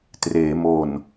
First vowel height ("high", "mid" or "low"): mid